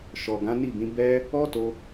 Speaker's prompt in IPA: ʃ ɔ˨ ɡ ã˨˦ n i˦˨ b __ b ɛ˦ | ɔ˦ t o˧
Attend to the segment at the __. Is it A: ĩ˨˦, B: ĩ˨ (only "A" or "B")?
A